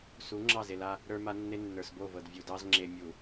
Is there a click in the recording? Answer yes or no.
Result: yes